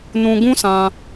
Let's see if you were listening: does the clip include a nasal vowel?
yes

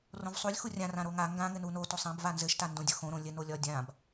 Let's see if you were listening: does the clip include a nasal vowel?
yes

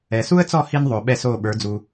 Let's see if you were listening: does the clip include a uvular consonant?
no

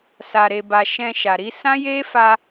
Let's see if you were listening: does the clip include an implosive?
no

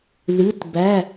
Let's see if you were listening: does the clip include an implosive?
no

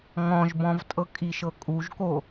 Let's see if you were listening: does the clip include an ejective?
yes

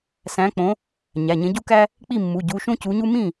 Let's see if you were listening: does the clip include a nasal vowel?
yes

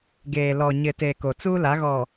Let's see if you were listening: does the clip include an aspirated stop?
no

